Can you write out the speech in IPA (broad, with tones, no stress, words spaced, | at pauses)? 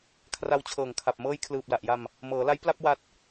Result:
kʰra˧wt͡ɕʰɤː˨˩ŋkʰa˨˩p̚ mɤː˧jkʰlɯː˨˩p̚la˨˩ʔja˧m | mɤː˩˦la˦˥j pla˥˩p̚wa˦˥t̚